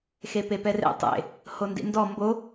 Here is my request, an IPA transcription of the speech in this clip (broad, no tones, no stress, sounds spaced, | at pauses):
x e p e p ɛ r ḛ tˤ ḛ | h o n d ḭ n d ɔ m b o